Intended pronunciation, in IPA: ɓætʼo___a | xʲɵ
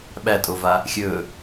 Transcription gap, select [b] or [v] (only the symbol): v